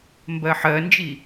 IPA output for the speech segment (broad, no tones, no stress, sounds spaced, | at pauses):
m b ɜ ħ ɜ n d͡ʒ i